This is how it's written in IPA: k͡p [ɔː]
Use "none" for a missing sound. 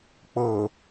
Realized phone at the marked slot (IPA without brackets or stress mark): ɤː